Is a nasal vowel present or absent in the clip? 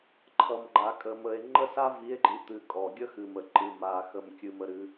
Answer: absent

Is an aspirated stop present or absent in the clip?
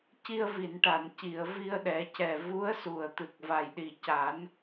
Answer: absent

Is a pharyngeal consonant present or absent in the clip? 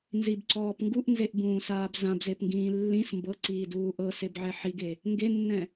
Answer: present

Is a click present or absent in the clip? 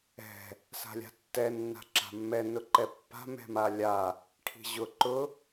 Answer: present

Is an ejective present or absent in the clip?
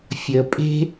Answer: present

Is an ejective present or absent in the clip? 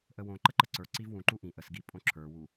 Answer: present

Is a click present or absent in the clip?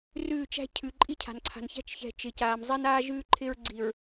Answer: present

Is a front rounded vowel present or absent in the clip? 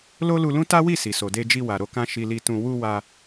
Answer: absent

